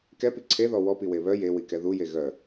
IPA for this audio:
kɛpi ǀʰeðɔ wɔpiwe βœ jewikɛ ðuje ɣœ

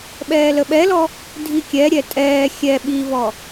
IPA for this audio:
ɓɛːləɓɛlɔ | dʱikʲɛɾʲɛ tʼɛː xʲɛ ɓivɔ

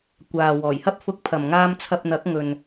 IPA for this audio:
kʷaː˨ wɔː˨˩jhɐ˧p̚fʊ˨˥k̚ pʰɐ˨mŋaː˧mt͡sʰɐ˧p̚n̪ɐ˨˥k̚ ŋɵ˨n

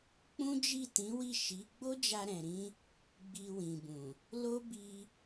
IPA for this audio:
k͡pũ˦d͡ʒi˦˨tĩ˨˦wi˦˨ ʃi˨˦ ɡ͡bo˦d͡ʒa˧ɾɛ̃˨ɾĩ˧ | ɡ͡bi˧wĩ˨bũ˨ | lo˦ bi˧

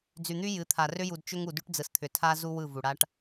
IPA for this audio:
d͡zy˨n̪y˦ jɨ˨˦t̪ʰa˨ rʏ˦ju˨d t͡ʃʏ˦ŋu˨ dy˦ʈd͡zɯ˨st̪ʰʏ˨ tʰa˦zu˦ wɯ˦˨vu˨ɽa˦ʈ

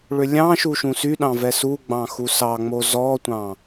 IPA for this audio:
ɭʏlʲɑ̃ʃu ʃũsyɗɑ̃vɛ su ɡ͡bɑ̃xusɑŋ͡mo zɔtʷɑ̃

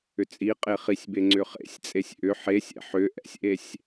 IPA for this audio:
ʏt͡sʼiqʼe χisʲbe ŋ͡ǀʏχḛsʲt͡sʼesʲ ʔʏ ħesʲɛ̰ ħʏ ʔɛ̰sʲʔesʲ

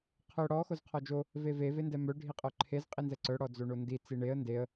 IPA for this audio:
qʰœ ɽɔ xozqʰɔd͡ʒo | veve vendɛmœ ɖʱiqʼœǃʰez qʼinzɛǀœ ɽɔd͡zoɳondi t͡siɳeə̯ ndeə̯

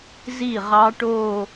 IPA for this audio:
zi˥˩ʁɑ˦˥ʈoː˥˧

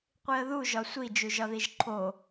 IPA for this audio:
qʷiə̯ðu ʒɒsʷi d͡ʒuʒɒðiʒǃʰo

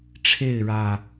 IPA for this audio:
ʈ͡ʂʰe˥˨ɪ̯ɻä˨˩

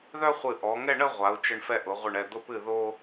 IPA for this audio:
ðœ˥χʷɨ˧˩ ʔɔ˩˧ŋɛ˥˧ ɳə˥˧ ʁʷa˩˧u̯ t͡ʃə˧ɳfɛ˧ ʔʊ˩˧ʁʷə˧˩ɳɛ˧˩ d̪ʊ˧pɨ˧˩ ðo˧

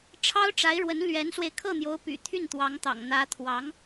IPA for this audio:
ʈ͡ʂʰɑ˥ʊ̯ʈ͡ʂa˧˥ɪ̯ɻwə˧˥n lɥɛ˧˥nswe˧ɪ̯ kʰɤ˥˩n̪jo˧˥ʊ̯py̰˨˩ t̪ʰy˥˩nt̪wɑ˧˥ŋt̪ɑ̰˨˩ŋ n̪ä˧˥t̪ʰwɑ˧˥ŋ

